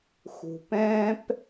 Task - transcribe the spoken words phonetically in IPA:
xṳ˨pɛ̃ː˦p

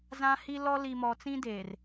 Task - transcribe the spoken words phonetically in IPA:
zã˦hi˦lɔ˦ li˨mɔ˨t͡sĩ˦deː˨r

